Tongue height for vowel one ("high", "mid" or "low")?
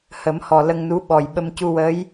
mid